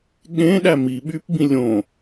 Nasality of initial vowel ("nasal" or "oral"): nasal